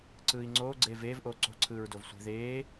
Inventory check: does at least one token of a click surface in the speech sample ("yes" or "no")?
yes